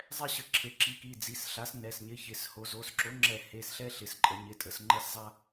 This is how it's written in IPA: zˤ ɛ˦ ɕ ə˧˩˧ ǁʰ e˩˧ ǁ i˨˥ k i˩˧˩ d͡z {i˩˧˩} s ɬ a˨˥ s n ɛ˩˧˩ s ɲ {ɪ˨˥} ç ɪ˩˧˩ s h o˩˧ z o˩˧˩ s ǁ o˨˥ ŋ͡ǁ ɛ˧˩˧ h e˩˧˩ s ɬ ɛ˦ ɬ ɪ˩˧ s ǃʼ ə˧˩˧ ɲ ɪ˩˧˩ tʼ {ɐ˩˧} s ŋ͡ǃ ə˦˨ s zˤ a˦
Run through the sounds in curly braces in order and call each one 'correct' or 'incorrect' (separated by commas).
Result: correct, correct, incorrect